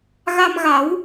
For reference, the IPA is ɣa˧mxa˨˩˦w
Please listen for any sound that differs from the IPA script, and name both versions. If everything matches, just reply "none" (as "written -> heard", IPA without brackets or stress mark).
x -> ɣ